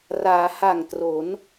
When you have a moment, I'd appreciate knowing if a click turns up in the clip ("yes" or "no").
no